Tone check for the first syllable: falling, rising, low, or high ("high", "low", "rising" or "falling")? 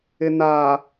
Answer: low